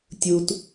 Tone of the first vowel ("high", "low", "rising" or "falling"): low